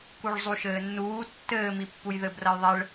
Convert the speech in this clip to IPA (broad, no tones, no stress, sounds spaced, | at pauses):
k u ɭ zˤ u ʃ ɘː nː uː tː ɘː m i pː u j ð ɘ b r ɐ j ðˤ ɛ ɭ